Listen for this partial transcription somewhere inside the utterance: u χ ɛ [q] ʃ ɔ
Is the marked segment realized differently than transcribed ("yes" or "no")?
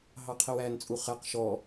no